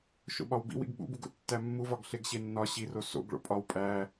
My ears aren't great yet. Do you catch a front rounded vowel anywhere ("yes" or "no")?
no